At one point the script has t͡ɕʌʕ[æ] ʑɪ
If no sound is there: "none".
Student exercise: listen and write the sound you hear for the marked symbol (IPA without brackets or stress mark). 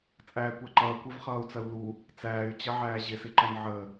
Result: æː